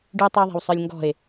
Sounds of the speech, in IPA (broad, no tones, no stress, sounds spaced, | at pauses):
ɖ ʉ tˤ ə˞ ðˤ æ̤ w sˤ ə˞ lʲ ŋ ɡ ɔ̤ e̯